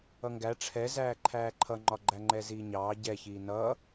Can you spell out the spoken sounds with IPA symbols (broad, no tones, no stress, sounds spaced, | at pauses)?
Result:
ʌ ŋ ɡ æ ʈ͡ʂʰ ɛ z æː ǃʰ æː ǃʰ ʌ ŋ͡ǃ ɒ ɡ͡ǃ æ ŋ͡ǃ ɛ z iː ɲ ɑː ɟ ɛ ç iː n ʌː